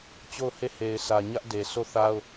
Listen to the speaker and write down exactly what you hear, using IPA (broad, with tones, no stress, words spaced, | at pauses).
t͡ɕo˦˨ʊ̯ he˦˨ he˨ɪ̯sʰä˨ɲä˦ʔ de˨so˦˨θa˦ʊ̯